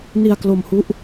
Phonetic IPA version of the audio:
n i˧ a̯ k l o˧ m h u˦˥ ʔ

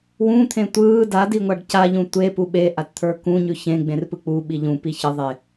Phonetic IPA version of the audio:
w ũ t̪ʰ ẽ tʷ ɯː d a d i ŋʷ a ɖ c a ʎ ũ tʷ e p u ɓ e ʔ a t t̪ʰ ə˞ k ũ ɲ ʉ ç ẽ ɡ͡b ẽ r p ɯ k͡p u ɓ i ʎ ũ p i ç ə ðˤ e

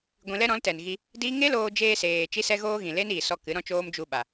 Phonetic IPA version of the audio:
ɡʷ ĩ˧ l ɛ˦ ɾ ɔ̃˨˦ l t ɛ˨ n ɣ i˧ | d iː˦ ŋ e˦ l oː˧ d͡ʒ eː˧ s eː˨ t͡ʃ i˦ s ɛ˦ ɣ oː˦ ɣ ĩ˨ l e˦ n iː˨ s ɔ˧ k ɨ˨˦ ɾ ɔ̃˦ t͡ʃ oː˦ m d͡ʒ u˧ ɓ a˨

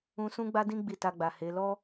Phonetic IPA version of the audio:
ũ˧ s ũ˦ ɡ͡b a˦ d ĩ˦ ɡ͡b i˦˨ t a˧ ɡ͡b a˨ h e˨˦ l ɔ˦

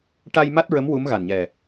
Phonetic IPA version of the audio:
ʈ a˧ j m a˦˥ t̚ ɹ ə˧˥ m w u˧˥ m ɣ a˨˩ n ɲ ɛ˨˩

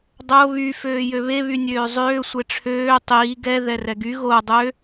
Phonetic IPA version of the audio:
dˤ o β y f øː j ø β e β y nʲ øː zˤ øː sʷ e ʈ͡ʂʰ øː tˤ iː ɡ ɛ ð ɛ r ɛ ɡ y ɣ o dˤ ø

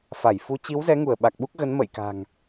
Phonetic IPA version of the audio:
f a˧˩ j f u˨˦ t͡ɕ i˨˦ w z ɛ˨˦ ŋ u˧˩ ə̯ ɓ a˨˩ k̚ ɓ u˦˥ k̚ ɣ ə˨˦ n m ə̰˧˨ j k a̤˨˩ ŋ

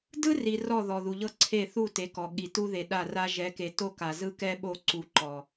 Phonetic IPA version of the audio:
d ɯ˦ r i˨ r ɔ˦˨ ð ɔ˨ ð u˨ ʎ ɤ˦ ǀʰ e˦˨ θ u˦˨ t e˨˦ k ɔ˨ ɠ i˨ t u˦ ð e˨ ɗ a˦˨ r a˦ ʒ ɛ˨˦ k e˨ t o˦ k a˨ z ɯ˦ k ɛ˦ ɓ o˦˨ ǀ u˨ ǃ ɔ˨

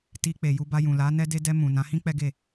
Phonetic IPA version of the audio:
t i˧ k͡p e˨ j u˧ b a˧ j ũ˨ l a˨˦ n ɛ˧ d e˧ d ɛ˧ m ũ˨ n ã˨˦ h ĩ˦ k͡p ɛ˦ ɡ e˦˨

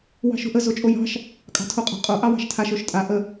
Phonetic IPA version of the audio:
w ɑ̤ ʃ o̤ ʔ ə z o t͡ʃʼ o j ɑ̤ ʃ | kʼ ɑ̤ tʰ o qʼ ɑ̤ qʼ o ʔ ɑ w ɑ̤ ʃ tʰ a ʃ o ʃ tʼ a ʔ ə

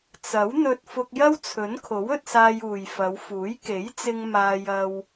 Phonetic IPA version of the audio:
t͡s ɐ˨˥ w n̪ ɵ˧ t̚ f ʊ˧ k̚ j ɐ˥ w t͡sʰ ɵ˨˥ n kʰ o˨˥ w ɵ˧ t̚ s aː˧ j uː˨ j f ɐ˨˧ w f uː˨˥ j k e˨˥ j t͡s ɪ˧ ŋ m aː˧ j ɐ˧ w

